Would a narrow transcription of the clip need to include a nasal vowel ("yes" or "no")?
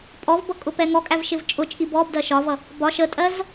no